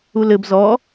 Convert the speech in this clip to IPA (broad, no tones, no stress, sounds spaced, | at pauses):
u l ɘ b z ɔ